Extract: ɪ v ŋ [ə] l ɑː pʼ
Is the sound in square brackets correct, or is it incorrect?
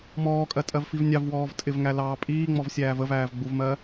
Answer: incorrect